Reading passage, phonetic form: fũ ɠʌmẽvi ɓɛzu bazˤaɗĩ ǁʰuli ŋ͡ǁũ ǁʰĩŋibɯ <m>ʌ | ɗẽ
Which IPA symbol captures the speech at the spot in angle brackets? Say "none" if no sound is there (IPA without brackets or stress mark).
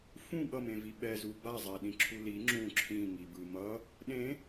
m